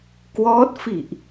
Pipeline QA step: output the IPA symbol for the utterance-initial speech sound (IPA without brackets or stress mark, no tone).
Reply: k